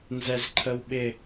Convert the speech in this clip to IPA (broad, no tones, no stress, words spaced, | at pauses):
nzɛzǃʰəwɓɪ